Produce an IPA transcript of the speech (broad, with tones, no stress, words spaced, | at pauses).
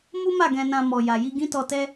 mu˦ma˦˨ ɡɛ̃˧nã˧ mɔ˨ja˨ji˧ ɡĩ˦tɔ˧tɛ˦